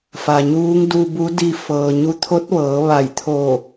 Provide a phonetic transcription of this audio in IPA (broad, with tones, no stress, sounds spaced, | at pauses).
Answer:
f a˩ ɲ uː˧˥ ŋ d u˧ b u˧˥ d i˧ f ɤː˩ ɲ u˧ t̪ʰ o˧˥ t̚ ʋ ɤː˩˧ ʋ a˧˩ j t̪ʰ o˧˩